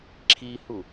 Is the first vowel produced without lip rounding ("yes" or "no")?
yes